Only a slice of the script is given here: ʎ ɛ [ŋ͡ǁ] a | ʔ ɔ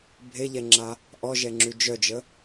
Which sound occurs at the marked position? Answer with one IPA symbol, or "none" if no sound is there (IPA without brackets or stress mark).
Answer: ŋ͡ǁ